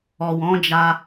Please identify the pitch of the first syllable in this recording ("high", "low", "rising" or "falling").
low